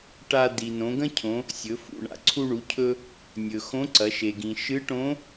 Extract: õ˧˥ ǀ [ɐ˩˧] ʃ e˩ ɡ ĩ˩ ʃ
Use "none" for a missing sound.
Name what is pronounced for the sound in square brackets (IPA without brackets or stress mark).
ɐ˩˧